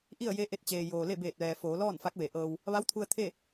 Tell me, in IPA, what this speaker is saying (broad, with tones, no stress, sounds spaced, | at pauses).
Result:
ʔ i˥˨ ə̯ j e˧˥ ʔ e˧ t̚ t͡ɕ eː˩ j oː˩ l e˥˨ b eː˧˩ t̚ ʋ ɛː˩ f oː˩˧ l ɔː˥˨ n f a˧˥ k̚ ʋ e˩˧ ʔ ɤː˧ w | ʋ a˧˥ w t̪ʰ u˧ ə̯ t̪ʰ e˥˨